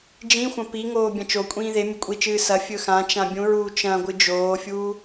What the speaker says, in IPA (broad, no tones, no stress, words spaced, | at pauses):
d͡ʒĩxʷɐ̃ piŋoː bʲɐ̃t͡ʃokʷʼĩː ðe mʲɵkʷʼit͡ʃɨː sɐ fʲɵxãt͡ʃã bʲũɹuː t͡ʃɐ̃ɡʷɨ d͡ʒoːfʲuː